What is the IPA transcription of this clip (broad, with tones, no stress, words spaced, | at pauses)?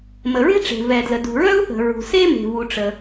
mə˩ɹe̤˥ʈ͡ʂe̤˩ vɛ˩dlə˩ dṳ˩ɹœ˥u̯θə̤˩ɹṳ˩ se˥me̤˩vu˩ ʈ͡ʂə˩